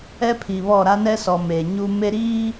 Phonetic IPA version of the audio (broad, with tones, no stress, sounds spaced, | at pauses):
ɛ˦ pʰ i˨ β ɔ˦˨ ɾ a˦ n ɛ˦ s ɔ˨ m e˨ ɲ u˦ m e˦ ɾ iː˦